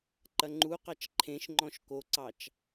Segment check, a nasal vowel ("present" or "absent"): present